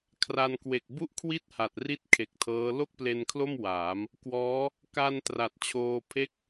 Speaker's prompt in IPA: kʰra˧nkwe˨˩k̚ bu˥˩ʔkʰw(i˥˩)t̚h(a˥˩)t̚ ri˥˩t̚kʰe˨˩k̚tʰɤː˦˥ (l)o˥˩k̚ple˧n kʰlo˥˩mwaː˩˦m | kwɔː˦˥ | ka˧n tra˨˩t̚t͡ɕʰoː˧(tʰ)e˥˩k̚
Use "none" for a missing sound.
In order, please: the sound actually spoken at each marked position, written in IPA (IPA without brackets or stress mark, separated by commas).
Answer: i˥˩, a˨˩, l, pʰ